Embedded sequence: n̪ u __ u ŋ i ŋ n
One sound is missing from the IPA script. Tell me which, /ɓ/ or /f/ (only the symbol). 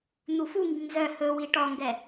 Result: f